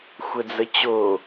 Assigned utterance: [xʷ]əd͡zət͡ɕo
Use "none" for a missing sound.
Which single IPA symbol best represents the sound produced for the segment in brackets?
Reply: xʷ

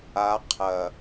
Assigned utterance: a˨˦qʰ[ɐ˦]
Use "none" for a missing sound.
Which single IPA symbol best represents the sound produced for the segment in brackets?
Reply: ɐ˨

